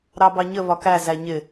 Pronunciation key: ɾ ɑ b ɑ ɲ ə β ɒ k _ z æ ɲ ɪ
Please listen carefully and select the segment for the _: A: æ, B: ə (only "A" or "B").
A